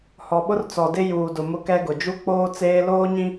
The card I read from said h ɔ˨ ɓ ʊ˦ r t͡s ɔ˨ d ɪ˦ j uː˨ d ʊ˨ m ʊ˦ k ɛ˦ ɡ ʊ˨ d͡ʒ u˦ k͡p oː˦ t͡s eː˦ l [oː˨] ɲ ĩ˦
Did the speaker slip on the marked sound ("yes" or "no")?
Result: yes